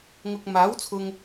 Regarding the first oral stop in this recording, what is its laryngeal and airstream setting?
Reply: plain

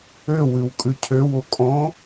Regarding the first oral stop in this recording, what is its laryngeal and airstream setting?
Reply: ejective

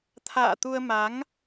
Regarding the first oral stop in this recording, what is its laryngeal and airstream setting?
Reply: aspirated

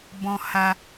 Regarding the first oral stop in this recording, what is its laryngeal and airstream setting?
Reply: plain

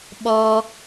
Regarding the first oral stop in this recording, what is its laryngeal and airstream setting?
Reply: implosive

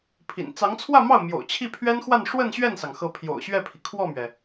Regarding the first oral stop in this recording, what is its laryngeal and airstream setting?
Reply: aspirated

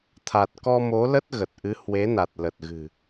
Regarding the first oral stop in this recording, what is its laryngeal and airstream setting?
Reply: aspirated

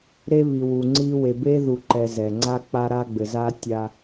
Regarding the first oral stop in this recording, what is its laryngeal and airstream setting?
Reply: click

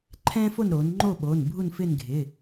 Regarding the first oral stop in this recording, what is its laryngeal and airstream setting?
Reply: click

